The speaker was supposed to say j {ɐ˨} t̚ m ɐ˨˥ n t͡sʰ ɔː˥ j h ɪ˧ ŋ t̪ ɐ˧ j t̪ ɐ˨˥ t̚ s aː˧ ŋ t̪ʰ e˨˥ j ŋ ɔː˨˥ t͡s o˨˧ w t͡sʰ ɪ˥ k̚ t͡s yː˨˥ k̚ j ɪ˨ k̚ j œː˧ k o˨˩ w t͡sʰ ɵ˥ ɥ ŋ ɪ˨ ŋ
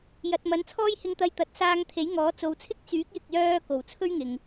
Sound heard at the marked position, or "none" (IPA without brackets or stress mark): ɐ˨